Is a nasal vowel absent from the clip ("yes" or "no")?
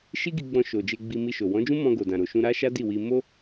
no